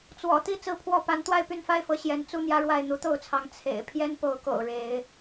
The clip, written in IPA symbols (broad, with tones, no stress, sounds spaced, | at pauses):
t͡s w ɔ̰˨˩ t̪ i˥˨ t͡s ɹ̩˦ pʰ w ɔ˥˨ p a˨˦ n t̪ w a˥˨ ɪ̯ p y˥˨ n f a˦ ɪ̯ f ɤ˨˦ ɕ j ɛ˨˦ n t͡s u˦ n̪ j ä˦ ɻ w a˥˨ ɪ̯ n̪ u˨˦ t̪ o˥˨ ʊ̯ t͡sʰ ɑ˨˦ ŋ t͡sʰ ḛ˨˩ ɪ̯ pʰ j ɛ˦ n p o˨˦ ʊ̯ k o̰˨˩ ʊ̯ ɻ e˨˦ ɪ̯